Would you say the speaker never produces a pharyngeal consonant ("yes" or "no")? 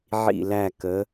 no